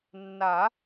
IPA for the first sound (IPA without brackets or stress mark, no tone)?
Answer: nː